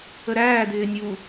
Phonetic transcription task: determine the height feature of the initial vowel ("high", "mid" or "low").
mid